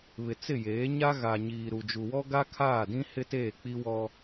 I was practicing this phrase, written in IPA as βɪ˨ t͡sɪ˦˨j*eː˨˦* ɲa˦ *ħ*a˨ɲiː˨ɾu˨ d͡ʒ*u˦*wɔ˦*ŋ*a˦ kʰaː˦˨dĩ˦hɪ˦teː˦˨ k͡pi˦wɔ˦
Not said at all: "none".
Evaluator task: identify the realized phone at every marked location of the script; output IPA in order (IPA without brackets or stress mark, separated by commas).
eː˨˦, ɣ, u˨, ɡ